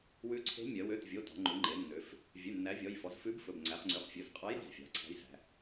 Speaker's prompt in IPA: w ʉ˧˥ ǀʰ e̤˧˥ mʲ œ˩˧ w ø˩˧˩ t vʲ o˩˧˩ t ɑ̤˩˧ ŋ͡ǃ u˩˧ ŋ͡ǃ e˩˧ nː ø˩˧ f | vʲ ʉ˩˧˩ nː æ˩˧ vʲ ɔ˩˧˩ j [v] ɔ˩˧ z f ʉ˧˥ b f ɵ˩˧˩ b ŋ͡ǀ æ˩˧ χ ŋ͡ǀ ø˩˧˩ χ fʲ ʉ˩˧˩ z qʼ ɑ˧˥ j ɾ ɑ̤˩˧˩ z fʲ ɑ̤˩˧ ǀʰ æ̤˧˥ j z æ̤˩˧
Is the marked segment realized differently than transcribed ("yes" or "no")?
yes